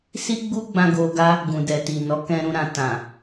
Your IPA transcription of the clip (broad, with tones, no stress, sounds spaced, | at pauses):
s i˦ ɡ͡b u˦ ɡ͡b ã˧ ɡ o˧ ɡ a˦ | ɡ ũ˨ d ɛ˨ t i˨ n ɔ˨˦ k ɛ̃˧ ɾ ũ˧ ɾ ã˨ t ã˨